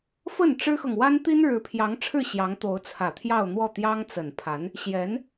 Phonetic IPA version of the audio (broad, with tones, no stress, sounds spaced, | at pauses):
f ə˥˩ n ʈ͡ʂ ɻ̩˥ x ɤ˨ ŋ w a˥ n t̪ i˥ n ɻ ɻ̩˧˥ pʰ j ɑ˧˥ ŋ ʈ͡ʂʰ ɻ̩˥˩ ɕ j ɑ˧˥ ŋ t̪ o˧˥ ʊ̯ t͡sʰ ä˨˩ t̪ʰ j ɑ˥˧ ʊ̯ n̪ w ɔ˥˩ t̪ j ɑ˥ ŋ t͡s ə˨˩ n pʰ a˧˥ n | ɕ j ɛ˧˥ n